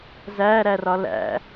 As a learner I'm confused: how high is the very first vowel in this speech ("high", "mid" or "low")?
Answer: low